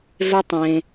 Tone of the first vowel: high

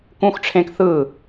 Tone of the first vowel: high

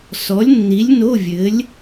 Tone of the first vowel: rising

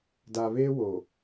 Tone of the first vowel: low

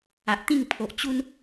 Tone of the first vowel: low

